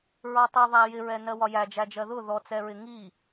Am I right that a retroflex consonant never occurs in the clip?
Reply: yes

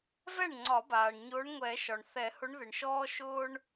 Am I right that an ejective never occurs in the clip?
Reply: yes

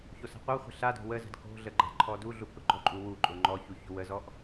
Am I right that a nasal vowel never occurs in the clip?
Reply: yes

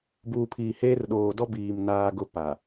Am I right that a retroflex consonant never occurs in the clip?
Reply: yes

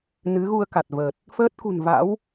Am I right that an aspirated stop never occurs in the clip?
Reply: yes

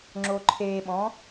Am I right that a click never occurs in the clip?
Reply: no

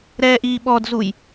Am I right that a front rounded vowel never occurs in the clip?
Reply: yes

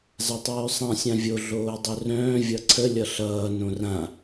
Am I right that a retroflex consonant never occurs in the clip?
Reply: yes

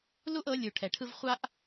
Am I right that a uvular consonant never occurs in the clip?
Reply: no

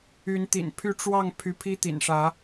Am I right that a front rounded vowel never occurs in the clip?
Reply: no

